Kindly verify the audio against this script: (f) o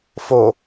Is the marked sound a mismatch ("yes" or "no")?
no